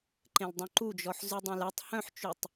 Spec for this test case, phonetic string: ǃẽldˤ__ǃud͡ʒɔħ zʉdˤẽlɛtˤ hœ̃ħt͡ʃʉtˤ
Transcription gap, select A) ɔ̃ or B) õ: B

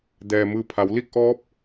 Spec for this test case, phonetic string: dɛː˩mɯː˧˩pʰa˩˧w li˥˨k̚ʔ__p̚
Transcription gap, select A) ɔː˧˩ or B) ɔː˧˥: B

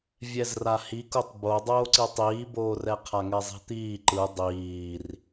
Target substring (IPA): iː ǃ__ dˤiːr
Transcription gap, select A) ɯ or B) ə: A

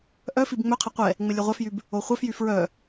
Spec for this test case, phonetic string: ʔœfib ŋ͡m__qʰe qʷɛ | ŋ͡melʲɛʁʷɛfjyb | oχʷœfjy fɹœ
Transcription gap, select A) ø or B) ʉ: A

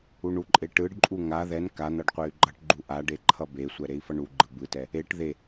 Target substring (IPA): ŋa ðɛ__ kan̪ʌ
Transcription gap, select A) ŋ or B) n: B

